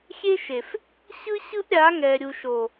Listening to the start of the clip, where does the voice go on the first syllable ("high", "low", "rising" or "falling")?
high